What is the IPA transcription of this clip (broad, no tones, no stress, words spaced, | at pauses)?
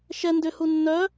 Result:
ʃɛ ndʏhu nːœ